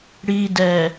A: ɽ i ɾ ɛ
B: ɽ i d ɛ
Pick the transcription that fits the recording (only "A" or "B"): B